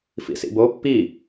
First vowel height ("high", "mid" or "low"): high